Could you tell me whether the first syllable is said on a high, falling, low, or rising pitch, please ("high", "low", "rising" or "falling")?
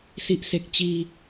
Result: low